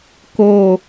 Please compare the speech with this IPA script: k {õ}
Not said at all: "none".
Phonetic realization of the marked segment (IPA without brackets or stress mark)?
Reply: o